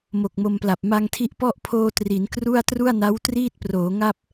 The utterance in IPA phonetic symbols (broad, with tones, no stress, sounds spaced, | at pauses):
m o˨˩ k̚ m o˧ m p l a˨˩ p̚ m a˧ ŋ tʰ i˦˥ ʔ p ɔ˥˩ ʔ pʰ oː˧ t r i˩˦ n k r u˥˩ a̯ t r u˥˩ a̯ n a˦˥ w t r iː˥˩ t̚ p r oː˩˦ ŋ a˥˩ p̚